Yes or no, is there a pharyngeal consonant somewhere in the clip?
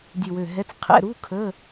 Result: no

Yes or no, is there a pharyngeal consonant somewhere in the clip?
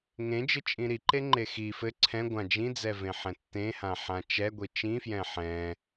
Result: yes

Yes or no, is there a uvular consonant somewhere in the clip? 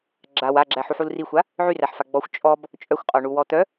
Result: yes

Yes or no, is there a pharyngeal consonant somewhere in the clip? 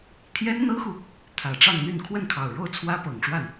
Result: no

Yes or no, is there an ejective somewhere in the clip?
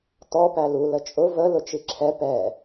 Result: yes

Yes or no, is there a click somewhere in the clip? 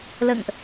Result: no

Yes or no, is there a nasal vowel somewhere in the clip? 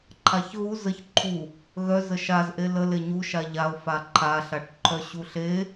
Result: no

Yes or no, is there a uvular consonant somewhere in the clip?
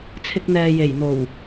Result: no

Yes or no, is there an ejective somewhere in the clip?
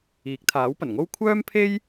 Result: no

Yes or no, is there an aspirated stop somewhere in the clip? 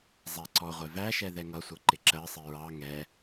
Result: no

